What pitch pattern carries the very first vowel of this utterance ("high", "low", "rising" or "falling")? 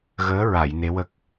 rising